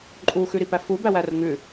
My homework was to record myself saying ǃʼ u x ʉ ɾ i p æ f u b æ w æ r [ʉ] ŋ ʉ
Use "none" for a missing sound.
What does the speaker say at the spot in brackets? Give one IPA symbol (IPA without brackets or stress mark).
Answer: ə